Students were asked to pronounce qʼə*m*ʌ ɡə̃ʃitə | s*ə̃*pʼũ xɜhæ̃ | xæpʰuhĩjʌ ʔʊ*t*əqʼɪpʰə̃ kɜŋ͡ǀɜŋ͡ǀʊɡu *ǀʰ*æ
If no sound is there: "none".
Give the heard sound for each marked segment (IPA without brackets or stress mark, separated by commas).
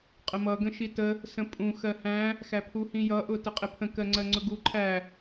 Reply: m, ə̃, t, ǃʰ